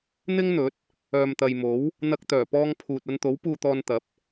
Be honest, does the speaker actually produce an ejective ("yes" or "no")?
no